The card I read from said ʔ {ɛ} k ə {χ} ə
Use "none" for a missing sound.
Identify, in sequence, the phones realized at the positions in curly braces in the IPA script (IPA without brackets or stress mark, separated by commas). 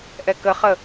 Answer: ɛ, χ